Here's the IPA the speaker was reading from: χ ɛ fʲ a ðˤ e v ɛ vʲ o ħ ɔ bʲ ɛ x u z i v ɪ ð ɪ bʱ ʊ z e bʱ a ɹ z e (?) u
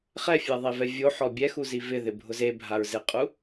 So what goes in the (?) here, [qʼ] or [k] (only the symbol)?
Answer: qʼ